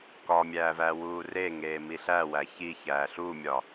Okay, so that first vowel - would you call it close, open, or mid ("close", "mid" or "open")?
open